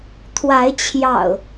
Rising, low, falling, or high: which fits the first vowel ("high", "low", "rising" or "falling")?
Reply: rising